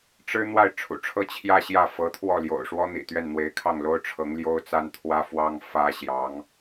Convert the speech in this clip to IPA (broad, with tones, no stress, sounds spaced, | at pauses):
ʈ͡ʂ ɻ̩˥ n̪ w a˥˩ ɪ̯ ʈ͡ʂʰ ṵ˨˩ ʈ͡ʂʰ ɤ˥˧ t͡ɕʰ j ä˥˧ ɕ j ä˥˩ f ɤ˧˥ t̪ʰ w ɔ˥˩ l j o̰˨˩ ʊ̯ ʂ w ɔ˥ n̪ ḭ˨˩ t̪ ɥ ɛ˥˩ n n̪ w e˧˥ ɪ̯ kʰ ɑ˥˩ ŋ l o˥ ʊ̯ ʈ͡ʂʰ ɤ˧˥ ŋ l j o˥ ʊ̯ t͡s a˥ n t̪ʰ w ä˥ f w ɑ˥ ŋ f ä˥ ɕ j ɑ˧˥ ŋ